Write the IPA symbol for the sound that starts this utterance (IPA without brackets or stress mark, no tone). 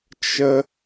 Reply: t͡ʃ